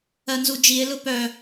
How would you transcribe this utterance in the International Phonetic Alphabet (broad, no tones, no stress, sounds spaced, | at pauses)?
ɜ n z u d͡ʒ i e̯ l ʊ p œ